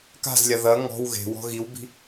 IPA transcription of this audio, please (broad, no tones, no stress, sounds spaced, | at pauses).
k a̤ z lʲ a ð ɐ ŋ ɔ̤ w ɣ e̤ w ɔ̤ ɣ i w b i̤